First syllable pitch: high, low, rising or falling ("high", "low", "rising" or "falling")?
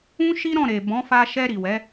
high